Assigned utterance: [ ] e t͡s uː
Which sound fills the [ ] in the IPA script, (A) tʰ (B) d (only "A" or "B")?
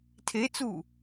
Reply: A